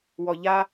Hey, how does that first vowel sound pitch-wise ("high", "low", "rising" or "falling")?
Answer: low